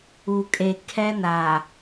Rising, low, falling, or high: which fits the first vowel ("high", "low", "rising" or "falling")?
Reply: low